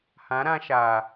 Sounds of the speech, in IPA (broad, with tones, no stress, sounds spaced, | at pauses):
h ã˨˦ ɾ ã˧ ʃ aː˨